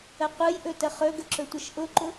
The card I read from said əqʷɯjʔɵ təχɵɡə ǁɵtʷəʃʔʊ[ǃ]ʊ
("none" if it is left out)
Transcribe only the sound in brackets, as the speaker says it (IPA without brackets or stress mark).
ǃ